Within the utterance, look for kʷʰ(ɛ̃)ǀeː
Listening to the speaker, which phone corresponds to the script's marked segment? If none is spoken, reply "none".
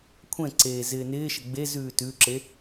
ɛ̃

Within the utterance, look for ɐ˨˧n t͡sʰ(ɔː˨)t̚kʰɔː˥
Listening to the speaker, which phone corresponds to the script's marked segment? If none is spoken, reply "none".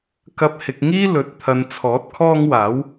ɔː˨˥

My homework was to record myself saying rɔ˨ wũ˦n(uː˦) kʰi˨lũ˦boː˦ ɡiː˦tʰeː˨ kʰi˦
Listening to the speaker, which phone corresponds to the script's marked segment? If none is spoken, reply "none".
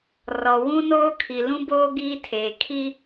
oː˦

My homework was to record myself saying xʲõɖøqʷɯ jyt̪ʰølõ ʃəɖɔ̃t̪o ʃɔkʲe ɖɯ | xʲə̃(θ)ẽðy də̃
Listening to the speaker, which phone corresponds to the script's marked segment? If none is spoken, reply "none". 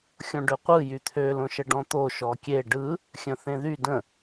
θ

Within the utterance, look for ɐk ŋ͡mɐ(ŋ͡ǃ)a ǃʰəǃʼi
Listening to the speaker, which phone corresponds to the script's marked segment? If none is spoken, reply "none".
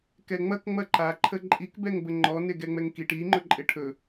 ǃ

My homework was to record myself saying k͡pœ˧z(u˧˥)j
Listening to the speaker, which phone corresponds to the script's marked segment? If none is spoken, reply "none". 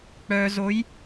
o˧˥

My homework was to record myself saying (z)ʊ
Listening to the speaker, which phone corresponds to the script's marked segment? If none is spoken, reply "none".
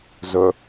z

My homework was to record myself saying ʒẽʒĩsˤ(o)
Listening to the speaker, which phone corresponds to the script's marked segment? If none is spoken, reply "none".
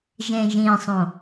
õ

